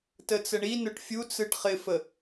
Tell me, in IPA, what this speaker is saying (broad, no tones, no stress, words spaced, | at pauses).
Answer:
tət͡səɳinʊʈ fʲut͡sɯʈ χɪfə